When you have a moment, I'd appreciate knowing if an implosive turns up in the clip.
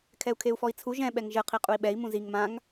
yes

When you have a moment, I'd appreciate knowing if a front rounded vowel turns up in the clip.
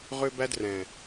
yes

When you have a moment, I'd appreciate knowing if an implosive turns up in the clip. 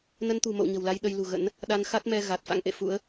yes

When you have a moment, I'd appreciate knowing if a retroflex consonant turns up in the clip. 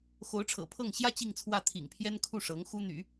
yes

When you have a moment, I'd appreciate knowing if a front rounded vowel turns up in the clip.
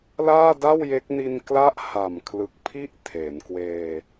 no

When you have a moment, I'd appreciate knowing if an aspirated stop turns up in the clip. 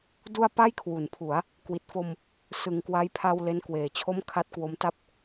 yes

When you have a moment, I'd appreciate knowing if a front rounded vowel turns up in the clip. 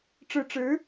no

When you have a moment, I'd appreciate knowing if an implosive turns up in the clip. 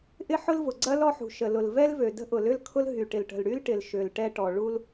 no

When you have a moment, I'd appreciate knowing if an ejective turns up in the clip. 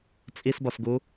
yes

